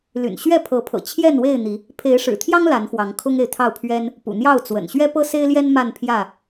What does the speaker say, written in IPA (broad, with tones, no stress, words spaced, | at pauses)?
ly̰˨˩nɕɥɛ˥˨pʰɤ˨˦pʰɤ̰˨˩ t͡ɕʰjɛ˥˨nwe˥˨ɪ̯n̪i˨˦ | pʰe˨˦ɪ̯ʂɻ̩˨˩t̪ʰjɑ˦ŋ la˨˦nxwɑ˨˦ŋkʰʊ˦ŋe˨ɪ̯ t̪ʰɑ˥˨ʊ̯pʰɥɛ˦n | pṵ˨˩n̪jɑ˥˨ʊ̯t͡swə̰˨˩n ɕɥɛ˦pɤ˦se˦ɪ̯ljɛ˦n ma˥˨npʰjä˥˨